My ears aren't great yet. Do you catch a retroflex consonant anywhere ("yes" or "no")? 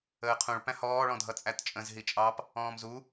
yes